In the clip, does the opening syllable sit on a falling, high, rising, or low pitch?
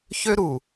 high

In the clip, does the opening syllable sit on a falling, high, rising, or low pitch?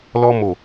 high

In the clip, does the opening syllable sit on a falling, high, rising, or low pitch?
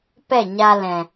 falling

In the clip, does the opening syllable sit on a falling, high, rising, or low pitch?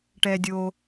low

